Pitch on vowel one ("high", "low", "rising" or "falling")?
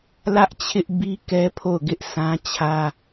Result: high